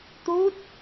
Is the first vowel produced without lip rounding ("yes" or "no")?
no